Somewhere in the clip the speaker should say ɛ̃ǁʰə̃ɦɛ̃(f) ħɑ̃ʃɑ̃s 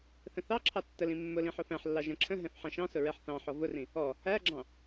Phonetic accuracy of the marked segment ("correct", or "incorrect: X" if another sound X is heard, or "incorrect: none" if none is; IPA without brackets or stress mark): correct